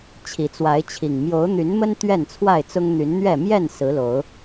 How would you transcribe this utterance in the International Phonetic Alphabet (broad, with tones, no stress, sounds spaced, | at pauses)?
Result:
t͡ɕʰ i˨˦ t͡s w a˨˦ ɪ̯ t͡ɕʰ i˨˩ ŋ m j o˨˦ ʊ̯ n̪ y˨˦ n m ə˦ n t̪ ɥ ɛ˥˨ n t͡sʰ w a˥˨ ɪ̯ t͡s ʊ˦ ŋ n̪ y˨˦ n n̪ ɥ ɛ˥˨ m j ɛ˥˨ n s ɹ̩˨˦ l o˨˦ ʊ̯